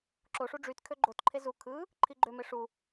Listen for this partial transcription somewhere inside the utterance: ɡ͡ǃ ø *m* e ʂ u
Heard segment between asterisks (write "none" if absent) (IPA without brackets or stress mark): m